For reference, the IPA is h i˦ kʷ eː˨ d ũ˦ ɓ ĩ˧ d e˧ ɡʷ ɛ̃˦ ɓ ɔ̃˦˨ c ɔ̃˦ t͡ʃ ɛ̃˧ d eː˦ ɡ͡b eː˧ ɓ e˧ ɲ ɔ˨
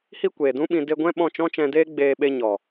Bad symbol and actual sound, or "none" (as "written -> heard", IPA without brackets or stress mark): c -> t͡ʃ